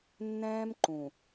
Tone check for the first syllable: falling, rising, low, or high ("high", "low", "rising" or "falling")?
high